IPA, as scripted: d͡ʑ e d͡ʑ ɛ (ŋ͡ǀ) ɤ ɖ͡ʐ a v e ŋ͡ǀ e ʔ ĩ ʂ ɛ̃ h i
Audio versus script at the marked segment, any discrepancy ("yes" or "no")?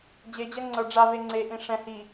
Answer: no